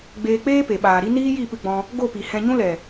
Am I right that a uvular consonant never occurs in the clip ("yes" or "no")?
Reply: yes